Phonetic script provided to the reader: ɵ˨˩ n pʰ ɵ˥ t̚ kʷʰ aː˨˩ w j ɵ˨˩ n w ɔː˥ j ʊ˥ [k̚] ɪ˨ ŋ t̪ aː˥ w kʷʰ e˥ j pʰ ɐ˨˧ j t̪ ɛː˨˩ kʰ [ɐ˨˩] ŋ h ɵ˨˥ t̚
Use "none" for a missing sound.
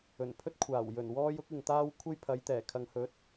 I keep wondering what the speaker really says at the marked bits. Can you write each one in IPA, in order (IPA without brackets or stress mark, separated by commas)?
k̚, ɐ˨